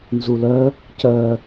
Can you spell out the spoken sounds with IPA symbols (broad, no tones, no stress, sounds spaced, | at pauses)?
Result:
n z u l œ | c œ